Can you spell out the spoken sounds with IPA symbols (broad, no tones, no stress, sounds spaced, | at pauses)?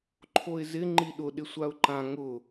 ǃʰ o ɪ̯ z ɪ ŋ͡ǃ i ɗ ʊ ɗ ɪ sʷ a ʊ̯ ǃ ã ŋ ʊ